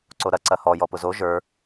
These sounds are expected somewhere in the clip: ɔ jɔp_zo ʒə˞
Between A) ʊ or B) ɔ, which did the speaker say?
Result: A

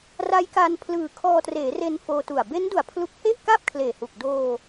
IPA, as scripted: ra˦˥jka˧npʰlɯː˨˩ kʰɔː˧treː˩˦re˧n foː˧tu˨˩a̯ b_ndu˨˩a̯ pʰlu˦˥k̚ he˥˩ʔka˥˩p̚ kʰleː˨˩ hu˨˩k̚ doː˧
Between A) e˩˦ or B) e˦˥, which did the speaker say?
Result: B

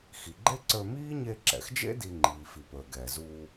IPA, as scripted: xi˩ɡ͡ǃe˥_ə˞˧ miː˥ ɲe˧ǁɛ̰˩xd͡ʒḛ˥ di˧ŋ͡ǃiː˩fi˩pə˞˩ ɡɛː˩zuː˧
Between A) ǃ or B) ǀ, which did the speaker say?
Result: B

